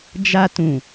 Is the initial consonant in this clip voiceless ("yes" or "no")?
no